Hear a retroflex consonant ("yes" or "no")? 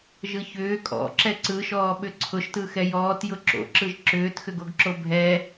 no